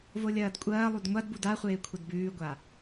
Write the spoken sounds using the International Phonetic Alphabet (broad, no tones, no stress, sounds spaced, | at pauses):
v o lʲ ɐː d kʷʼ ɐː lˠ u d ŋʷ a d b u d a χʷ eː kʷʰ ɐ d b ʉː ɡʷ a